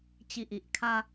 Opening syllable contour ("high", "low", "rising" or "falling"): low